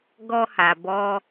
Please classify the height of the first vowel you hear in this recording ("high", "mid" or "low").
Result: mid